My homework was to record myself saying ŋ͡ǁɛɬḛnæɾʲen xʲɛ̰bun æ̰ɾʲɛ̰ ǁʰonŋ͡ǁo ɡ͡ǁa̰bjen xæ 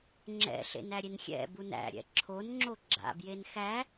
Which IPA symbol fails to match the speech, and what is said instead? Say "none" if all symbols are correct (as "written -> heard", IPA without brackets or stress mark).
ɛ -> ɛ̰